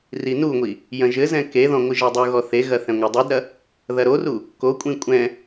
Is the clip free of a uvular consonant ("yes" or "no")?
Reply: yes